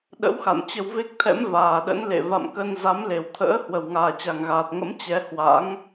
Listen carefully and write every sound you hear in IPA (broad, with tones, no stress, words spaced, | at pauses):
ɗə̰˧˥wxa̰˧˨n t͡ɕə˧wve˦˥k̚t̪ʰɛ̰˧˥m vaː˨˩ɗə̰˧˥nlḛ˧˨ va̰˧˨mkə˧n za˨˦mle˧˩wt̪ʰə̰ː˧˥ hwə˨˩wŋaː˨˩t͡ɕa˨˩ŋɣaː˨˩t̚ ŋə̰˧˥m t͡ɕɛ˨˦ hwa̰˧˥ŋ